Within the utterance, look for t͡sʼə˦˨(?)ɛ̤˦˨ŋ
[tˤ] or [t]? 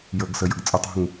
tˤ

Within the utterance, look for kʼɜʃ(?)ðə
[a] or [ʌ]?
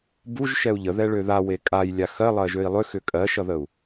ʌ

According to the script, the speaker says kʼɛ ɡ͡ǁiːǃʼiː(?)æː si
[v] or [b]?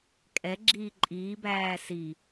b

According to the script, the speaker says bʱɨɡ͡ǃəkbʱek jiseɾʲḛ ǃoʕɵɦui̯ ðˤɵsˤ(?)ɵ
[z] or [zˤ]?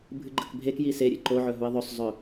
zˤ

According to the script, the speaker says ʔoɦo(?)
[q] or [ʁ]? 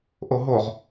ʁ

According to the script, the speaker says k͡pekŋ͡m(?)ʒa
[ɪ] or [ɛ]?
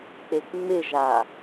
ɪ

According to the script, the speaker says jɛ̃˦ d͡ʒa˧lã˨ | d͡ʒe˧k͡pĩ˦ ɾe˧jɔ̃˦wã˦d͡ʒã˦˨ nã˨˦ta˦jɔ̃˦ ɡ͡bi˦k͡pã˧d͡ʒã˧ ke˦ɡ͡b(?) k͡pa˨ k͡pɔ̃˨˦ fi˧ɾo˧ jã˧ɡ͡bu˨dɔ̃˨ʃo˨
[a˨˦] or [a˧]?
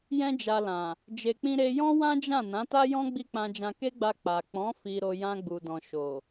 a˧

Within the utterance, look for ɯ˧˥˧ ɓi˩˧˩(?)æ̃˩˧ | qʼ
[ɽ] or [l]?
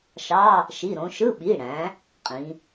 ɽ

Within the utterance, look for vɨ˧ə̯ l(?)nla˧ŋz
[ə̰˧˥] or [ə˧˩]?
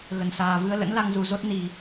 ə̰˧˥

